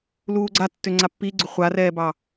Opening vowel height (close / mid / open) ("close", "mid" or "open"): close